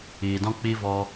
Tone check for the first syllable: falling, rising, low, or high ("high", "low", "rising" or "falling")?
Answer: low